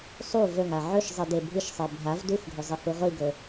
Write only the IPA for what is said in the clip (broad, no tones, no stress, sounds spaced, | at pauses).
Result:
sˤ u v ɵ ŋ a ʕ ɵ ʃ zˤ i d e bʱ ɨ ʃ sˤ e bʱ a v d u x ɡʱ ɵ zˤ i h u ʁʷ i ɡ ɵ